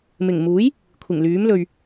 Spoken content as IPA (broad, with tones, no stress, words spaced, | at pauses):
mɪ˨˩ŋ muː˨˥j | kʷʰɪ˨˩ŋlyː˨˥mlɵ˨ɥ